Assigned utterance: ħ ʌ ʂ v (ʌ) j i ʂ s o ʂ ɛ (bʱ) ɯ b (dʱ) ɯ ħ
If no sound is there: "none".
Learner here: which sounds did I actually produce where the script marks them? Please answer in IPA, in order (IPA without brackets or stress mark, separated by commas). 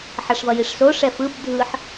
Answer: ʌ, f, dʱ